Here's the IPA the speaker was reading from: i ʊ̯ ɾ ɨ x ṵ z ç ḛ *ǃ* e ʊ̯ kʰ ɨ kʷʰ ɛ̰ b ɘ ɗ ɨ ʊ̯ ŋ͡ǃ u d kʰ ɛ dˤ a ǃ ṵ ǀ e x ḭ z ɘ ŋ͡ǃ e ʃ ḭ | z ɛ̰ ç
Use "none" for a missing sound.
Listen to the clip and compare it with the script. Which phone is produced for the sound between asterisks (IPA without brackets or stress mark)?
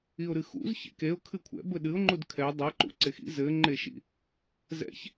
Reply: k